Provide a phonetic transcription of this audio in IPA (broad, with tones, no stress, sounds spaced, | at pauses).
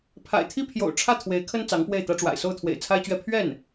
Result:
pʰ a̰˨˩ ɪ̯ t̪ʰ i˥ pʰ j o̰˨˩ ʊ̯ ʈ͡ʂʰ ä˥˩ t̪ʰ w e˧˥ ɪ̯ kʰ ə˥ n t͡s ɑ˧˥ ŋ p w e˥˩ ɪ̯ t̪ ä˥ ʈ͡ʂ w a̰˨˩ ɪ̯ s o˥˩ ʊ̯ t̪ʰ w ḛ˨˩ ɪ̯ t͡sʰ a˥ ɪ̯ t͡ɕ ɥ ɛ˥˧ pʰ ɥ ɛ˥˩ n